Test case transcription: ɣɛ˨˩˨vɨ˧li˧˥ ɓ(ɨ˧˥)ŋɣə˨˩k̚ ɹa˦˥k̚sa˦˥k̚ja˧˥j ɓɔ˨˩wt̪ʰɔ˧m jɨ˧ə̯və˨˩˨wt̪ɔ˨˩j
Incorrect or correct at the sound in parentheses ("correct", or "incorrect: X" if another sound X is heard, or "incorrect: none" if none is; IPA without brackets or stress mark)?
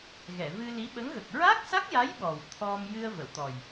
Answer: incorrect: ə˧˥